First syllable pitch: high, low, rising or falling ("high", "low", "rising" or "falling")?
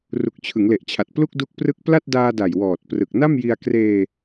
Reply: low